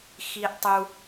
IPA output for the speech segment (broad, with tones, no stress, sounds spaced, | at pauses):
x i˧ ʔ tˤ u˧